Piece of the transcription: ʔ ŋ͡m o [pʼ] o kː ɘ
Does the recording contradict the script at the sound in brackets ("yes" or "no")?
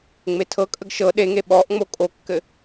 yes